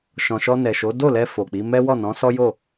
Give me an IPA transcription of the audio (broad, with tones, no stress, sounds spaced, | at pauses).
ʃ ɔ̃˨ ʃ ɔ˧ n ɛ˨ ʃ o˨˦ d o˦˨ l ɛ˧ f o˨ k͡p i˨˦ m ɛ˦ w ɔ˦˨ n ɔ̃˨˦ s ɔ˦ j o˦˨